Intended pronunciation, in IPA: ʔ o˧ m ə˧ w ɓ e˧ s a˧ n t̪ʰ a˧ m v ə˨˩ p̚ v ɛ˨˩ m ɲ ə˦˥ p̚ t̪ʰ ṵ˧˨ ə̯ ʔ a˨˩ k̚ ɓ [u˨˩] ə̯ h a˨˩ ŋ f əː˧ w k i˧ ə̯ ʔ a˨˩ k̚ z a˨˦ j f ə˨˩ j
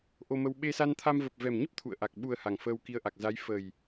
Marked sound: correct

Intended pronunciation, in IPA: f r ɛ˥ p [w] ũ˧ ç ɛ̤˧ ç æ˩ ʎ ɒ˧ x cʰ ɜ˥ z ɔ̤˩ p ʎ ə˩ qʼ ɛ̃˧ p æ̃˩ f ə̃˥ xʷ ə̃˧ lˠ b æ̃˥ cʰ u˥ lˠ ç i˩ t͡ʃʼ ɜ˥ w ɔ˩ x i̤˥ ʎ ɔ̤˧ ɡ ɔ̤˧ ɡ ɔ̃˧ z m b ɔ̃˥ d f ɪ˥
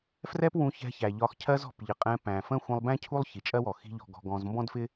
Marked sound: correct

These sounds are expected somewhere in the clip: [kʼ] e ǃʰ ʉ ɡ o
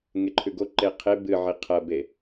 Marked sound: incorrect: ŋ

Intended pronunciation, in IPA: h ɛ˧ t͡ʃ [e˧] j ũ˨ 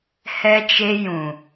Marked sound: correct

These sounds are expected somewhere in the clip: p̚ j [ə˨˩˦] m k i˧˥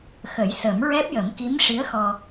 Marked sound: correct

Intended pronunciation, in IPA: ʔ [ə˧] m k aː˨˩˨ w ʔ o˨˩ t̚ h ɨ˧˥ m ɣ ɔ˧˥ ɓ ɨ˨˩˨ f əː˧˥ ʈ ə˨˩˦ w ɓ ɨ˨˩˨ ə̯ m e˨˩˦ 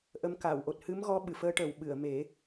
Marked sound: incorrect: ə˧˥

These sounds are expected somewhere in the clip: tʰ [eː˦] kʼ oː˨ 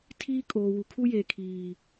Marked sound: incorrect: iː˦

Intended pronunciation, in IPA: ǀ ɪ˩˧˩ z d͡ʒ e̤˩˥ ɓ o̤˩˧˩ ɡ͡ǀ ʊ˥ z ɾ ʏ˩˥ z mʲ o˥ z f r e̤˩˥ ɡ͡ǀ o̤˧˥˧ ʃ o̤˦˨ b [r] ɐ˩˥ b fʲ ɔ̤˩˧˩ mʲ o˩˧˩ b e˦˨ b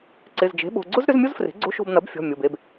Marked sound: incorrect: n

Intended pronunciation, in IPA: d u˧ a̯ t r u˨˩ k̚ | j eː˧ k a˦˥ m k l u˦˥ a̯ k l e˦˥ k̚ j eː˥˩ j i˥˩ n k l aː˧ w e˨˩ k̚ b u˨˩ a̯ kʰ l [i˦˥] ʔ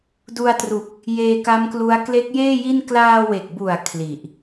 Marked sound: incorrect: i˨˩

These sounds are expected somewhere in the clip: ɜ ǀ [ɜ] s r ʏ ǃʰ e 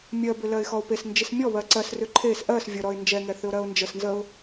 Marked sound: correct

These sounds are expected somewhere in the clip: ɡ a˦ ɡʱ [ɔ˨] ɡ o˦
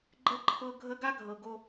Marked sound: incorrect: ɤ˨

